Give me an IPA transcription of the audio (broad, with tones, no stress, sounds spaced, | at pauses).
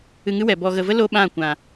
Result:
ɨ˧ ŋ ɨ˦ w ɛ˨ b ɔ˨ ɣ ə˨ v ə˦ l o˦ ɓ ã˦˨ kʷ ã˨